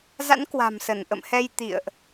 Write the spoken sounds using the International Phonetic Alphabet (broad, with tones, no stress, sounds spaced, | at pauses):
z a̰˧˥ n k w a̤˨˩ m s ə˧˩ n ʔ ə̰˧˨ m h ɛ˧ j t̪ ḭ˧˨ ə̯ ʔ